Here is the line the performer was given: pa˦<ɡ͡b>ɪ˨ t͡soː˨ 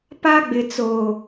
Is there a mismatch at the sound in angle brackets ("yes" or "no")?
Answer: no